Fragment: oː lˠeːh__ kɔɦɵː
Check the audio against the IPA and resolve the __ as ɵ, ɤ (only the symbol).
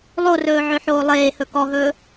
ɵ